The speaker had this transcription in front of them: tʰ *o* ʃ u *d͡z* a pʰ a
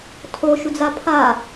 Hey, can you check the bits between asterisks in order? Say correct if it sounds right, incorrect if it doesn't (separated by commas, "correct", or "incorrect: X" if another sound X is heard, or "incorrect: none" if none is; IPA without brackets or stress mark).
correct, correct